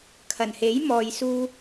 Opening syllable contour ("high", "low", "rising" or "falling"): low